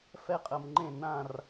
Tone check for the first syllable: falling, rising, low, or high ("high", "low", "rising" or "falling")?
high